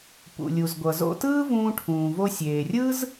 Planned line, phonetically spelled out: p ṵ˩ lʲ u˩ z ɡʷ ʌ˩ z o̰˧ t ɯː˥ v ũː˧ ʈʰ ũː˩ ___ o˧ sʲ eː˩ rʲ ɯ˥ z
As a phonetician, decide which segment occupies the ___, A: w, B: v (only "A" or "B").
B